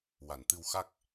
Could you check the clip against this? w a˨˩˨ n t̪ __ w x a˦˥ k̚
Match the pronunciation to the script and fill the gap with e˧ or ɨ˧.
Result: ɨ˧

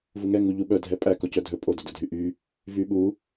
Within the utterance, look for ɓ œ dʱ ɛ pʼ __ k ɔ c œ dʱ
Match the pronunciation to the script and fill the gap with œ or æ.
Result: æ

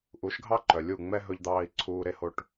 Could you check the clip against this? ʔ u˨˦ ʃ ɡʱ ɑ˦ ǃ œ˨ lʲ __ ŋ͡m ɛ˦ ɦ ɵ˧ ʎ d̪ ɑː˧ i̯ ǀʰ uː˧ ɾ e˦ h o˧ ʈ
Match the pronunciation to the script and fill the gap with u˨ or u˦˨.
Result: u˦˨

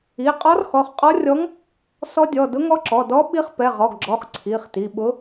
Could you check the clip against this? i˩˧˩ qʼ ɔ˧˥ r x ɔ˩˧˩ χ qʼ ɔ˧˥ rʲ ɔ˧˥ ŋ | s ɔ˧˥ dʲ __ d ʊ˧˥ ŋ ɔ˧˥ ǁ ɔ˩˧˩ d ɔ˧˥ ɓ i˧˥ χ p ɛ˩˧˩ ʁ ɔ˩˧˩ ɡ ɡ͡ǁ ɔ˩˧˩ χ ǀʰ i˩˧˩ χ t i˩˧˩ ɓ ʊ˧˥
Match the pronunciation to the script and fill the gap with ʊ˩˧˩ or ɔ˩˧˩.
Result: ɔ˩˧˩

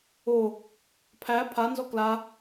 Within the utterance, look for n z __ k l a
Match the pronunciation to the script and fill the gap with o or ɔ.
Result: ɔ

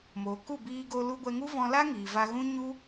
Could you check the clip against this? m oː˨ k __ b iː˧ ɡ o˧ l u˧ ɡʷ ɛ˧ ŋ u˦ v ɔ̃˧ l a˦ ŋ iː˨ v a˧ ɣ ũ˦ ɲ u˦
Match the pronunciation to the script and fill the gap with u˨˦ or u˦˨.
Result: u˦˨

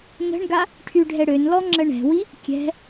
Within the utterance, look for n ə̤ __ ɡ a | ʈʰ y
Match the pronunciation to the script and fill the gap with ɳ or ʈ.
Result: ɳ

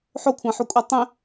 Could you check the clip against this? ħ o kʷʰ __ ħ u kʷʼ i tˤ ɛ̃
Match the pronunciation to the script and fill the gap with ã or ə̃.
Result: ã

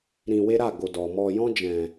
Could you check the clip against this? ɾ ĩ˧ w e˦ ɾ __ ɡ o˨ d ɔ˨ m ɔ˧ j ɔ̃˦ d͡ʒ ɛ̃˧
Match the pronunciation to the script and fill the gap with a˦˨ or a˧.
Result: a˦˨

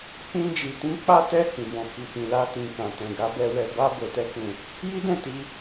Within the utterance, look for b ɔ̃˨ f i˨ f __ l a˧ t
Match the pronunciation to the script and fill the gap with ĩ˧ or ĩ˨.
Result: ĩ˨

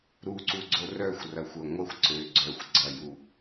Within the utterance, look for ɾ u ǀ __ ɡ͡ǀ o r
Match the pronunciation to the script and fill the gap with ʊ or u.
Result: u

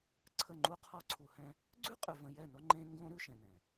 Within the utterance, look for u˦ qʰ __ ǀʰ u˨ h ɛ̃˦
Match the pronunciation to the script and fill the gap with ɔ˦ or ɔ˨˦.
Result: ɔ˦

